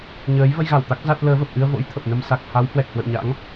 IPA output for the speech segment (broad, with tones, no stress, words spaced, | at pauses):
ɲəː˨˦j və˧jɣa˧˩w t̪a˦˥k̚ za˦˥t̚ ləː˨˦və˨˩p̚ʔɨ˧ə̯vo̰˧˥j t̪ʰə˨˩p̚nə˧m sa˨˩k̚ha˨˦w hwɛ˨˩k̚hwə̰˧˨wɲa̰˧˥ŋ